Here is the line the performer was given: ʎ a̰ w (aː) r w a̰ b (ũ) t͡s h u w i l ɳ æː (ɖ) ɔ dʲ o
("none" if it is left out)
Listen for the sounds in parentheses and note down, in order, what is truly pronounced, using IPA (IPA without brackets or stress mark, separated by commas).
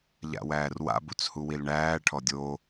æː, u, ʈʰ